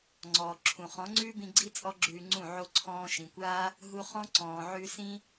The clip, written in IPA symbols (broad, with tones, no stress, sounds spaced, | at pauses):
ŋ͡ǀ ɔː˨ ǁʰ ũ˨ χ ɔ̃˨˦ ŋ͡ǀ ʉː˦ b ĩ˧ ɡ͡ǀ i˦ t͡sʼ ɔ˦ ɡ͡ǁ ʉː˧ ŋ͡ǀ ũ˦˨ ʕ o˧ ǀʰ ɔ̃ː˧ ʃ ĩ˨ kʷ aː˦ | ɦ u˧ χ ɔ̃˦ ǀ ɔ̃ː˨ ʕ ʉ˧ s ĩ˦